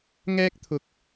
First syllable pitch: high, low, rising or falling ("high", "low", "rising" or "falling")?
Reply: high